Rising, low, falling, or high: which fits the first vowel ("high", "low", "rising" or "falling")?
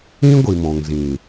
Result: high